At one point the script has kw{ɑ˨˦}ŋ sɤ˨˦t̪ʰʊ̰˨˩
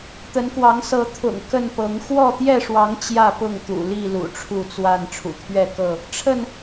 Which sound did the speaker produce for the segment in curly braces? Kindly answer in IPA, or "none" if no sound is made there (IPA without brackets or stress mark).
ɑ˨˦